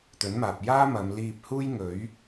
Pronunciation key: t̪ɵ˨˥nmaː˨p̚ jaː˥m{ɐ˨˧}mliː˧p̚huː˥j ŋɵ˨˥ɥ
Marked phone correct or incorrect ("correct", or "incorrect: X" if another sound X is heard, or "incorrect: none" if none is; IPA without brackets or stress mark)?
correct